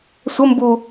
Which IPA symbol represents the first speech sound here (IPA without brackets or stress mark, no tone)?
sʷ